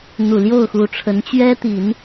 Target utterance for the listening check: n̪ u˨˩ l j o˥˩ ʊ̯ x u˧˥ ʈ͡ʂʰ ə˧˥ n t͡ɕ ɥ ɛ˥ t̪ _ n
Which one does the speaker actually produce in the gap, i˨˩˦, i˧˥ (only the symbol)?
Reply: i˨˩˦